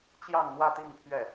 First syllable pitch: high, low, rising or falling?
falling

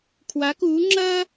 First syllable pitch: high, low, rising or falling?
rising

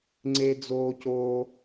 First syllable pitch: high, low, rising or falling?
high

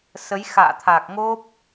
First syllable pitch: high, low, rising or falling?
rising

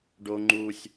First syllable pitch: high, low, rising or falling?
high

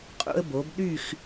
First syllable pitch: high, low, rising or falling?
high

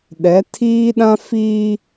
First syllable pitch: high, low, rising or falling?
rising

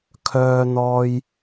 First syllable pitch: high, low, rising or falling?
high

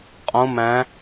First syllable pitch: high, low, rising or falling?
rising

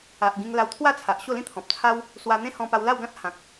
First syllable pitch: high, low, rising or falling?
low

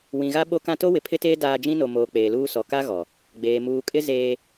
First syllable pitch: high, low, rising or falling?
low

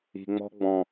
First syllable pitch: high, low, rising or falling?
low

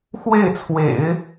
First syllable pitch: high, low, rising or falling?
falling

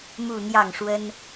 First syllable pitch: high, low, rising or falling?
falling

